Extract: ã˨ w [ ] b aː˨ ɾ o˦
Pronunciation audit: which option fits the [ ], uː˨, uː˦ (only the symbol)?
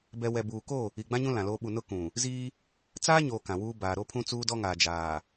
uː˦